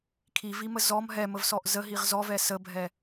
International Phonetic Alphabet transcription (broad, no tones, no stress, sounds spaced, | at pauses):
kʰ i v i m ə z ɔ m ɦ ɛ m ə v s ɔ ʔ z ə ɦ i ʁ z ɔ v ɛ s ə bʱ ɛ